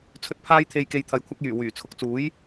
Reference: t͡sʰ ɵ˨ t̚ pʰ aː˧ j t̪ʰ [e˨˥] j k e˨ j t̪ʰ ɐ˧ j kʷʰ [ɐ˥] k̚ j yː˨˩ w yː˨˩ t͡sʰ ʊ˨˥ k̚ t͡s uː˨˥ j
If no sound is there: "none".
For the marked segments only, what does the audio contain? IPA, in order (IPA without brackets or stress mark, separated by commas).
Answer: e˨, ɐ˥